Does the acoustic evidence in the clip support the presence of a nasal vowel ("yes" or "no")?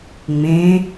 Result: yes